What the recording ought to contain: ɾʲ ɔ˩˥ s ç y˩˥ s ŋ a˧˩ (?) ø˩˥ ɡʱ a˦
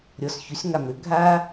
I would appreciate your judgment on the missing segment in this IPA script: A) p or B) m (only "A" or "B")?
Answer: B